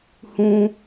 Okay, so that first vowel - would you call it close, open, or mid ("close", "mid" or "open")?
close